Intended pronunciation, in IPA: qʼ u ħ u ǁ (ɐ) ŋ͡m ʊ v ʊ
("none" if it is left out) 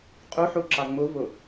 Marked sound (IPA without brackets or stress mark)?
ɑ